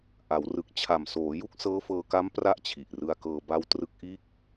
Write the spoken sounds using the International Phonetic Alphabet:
ʔ a˩˦ w r ɯ˨˩ k̚ t͡ɕʰ a˨˩ m s oː˩˦ j u˥˩ k̚ s ɤː˦˥ f ɤː˧ k a˦˥ m p r a˥˩ ʔ t͡ɕʰ i˨˩ ʔ r ɯ˧ a̯ k ɤː˧ b a˦˥ w t r ɯ˦˥ k̚ ʔ iː˥˩ k̚

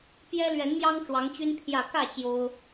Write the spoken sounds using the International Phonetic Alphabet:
p j ɛ˦ l ɥ ɛ˨˦ n m j ɑ˦ ŋ ʈ͡ʂ w ɑ˨˦ ŋ t͡ɕ y˦ n pʰ j ä˥˨ k ä˥˨ t͡ɕ j o˦ ʊ̯

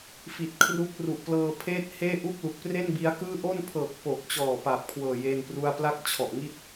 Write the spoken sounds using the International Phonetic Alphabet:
f i˨˩ t̚ kʰ r u˦˥ k̚ r u˨˩ ʔ p l ɤː˧ pʰ eː˥˩ t̚ h eː˥˩ ʔ u˥˩ k̚ l u˨˩ k̚ p r e˥˩ n b i˦˥ a̯ k ɯː˥˩ ʔ o˥˩ n pʰ ɤː˨˩ k̚ p o˨˩ k̚ t͡ɕ ɔː˨˩ p a˨˩ p̚ kʰ w ɤː˨˩ j e˥˩ n p r u˥˩ a̯ p l a˥˩ k̚ t͡ɕʰ ɔ˨˩ ʔ ŋ i˥˩ t̚

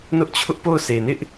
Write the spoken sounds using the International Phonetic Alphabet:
n ʊ˦ ʔ t͡ɕʰ ʊ˦ ʔ p o˦˨ ʊ̯ sʰ e˨ n ɪ˦ ʔ

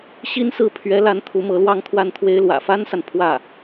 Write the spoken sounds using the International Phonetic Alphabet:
ɕ i˥ n s ɹ̩˥˩ pʰ ɥ ɛ˧˥ l a˧˥ n t̪ʰ u˧˥ m ɤ˧˥ l w ɑ˥˧ ŋ t̪ʰ w a˥˩ n t̪ʰ w e˥ ɪ̯ l w ä̰˨˩ f a˥ n s a˨ n pʰ w ä˥˩

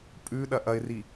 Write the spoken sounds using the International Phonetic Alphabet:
pʼ ʉ ɗ ɐ ʔ ɐ ɪ̯ r i

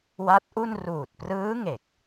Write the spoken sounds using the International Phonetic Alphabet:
w a˦˥ t̚ ʔ u˥˩ n r uː˨˩ t̚ p r ɯː˦˥ ŋ e˨˩ k̚

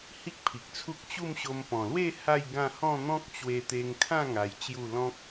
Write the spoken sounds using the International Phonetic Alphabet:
h i˦ k̚ pʰ i˨ k̚ t͡sʰ u˦ k̚ t͡ɕ u˥˧ m ɕ o˧ m p ɔ̃˨˩ l w e˥˧ h a˥˧ j ɡ ã˥˧ h ɔ̃˥˧ n̪ ɔ̃˦ k̚ t͡ɕ w e˧ t̪ e˧ ŋ kʰ ã˥˧ ŋ a˧ j t͡ɕ j u˥˧ l ɔ̃˦ k̚

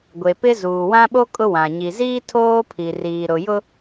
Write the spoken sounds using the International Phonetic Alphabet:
ɡʷ e˨ p ɪ˦ z uː˨ w ã˦ ɓ o˦ kʼ ʊ˦ w ã˨ ɲ i˨ z iː˦ tʰ oː˦ pʰ i˨ r iː˨ ɾ ʊ˨ j ʊ˦

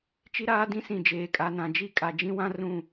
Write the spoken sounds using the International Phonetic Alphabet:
t͡ʃ i˦ ɾ aː˦ d ĩ˦ s ĩ˨ d͡ʒ eː˨ kʼ a˨ n ã˨ d͡ʒ i˦ kʼ a˨ d͡ʒ ĩ˦ w ã˦ r ũ˦˨

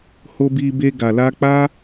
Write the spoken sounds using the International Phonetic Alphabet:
h o˧ b i˧ b e˧ ɡ a˨ l a˧ k͡p a˦

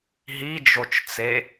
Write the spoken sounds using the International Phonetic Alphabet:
ɦ i d͡ʒ o t͡ʃ t͡s e

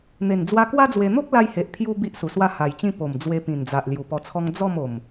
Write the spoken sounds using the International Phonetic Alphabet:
n̪ e˨˩ n d͡z w a˧ k w a˦ d͡z w e˧ n̪ o˦ k̚ l a˧ j h e˨ ʔ pʰ j u˧ b i˦ ʔ s u˨˩ s w a˥˧ h a˨˩ j t͡ɕ ĩ˦ p o˨˩ m d͡z w e˧ p ĩ˨˩ n d͡z a˨ ʔ l j u˨˩ p ɔ˧ t͡sʰ ɔ˦ ŋ d͡z ɔ˥˧ m o˨˩ m

